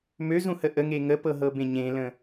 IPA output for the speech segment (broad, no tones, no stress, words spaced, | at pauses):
møzũhə ʔəŋe ŋəpɤɦɤbẽ ɲẽlə̃